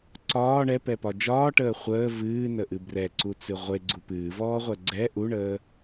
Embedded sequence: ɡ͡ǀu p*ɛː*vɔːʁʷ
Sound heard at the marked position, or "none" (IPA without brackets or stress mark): ɨː